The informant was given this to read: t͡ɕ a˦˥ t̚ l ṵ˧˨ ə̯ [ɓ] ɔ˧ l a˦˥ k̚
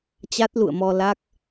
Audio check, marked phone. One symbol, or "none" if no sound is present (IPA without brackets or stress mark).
m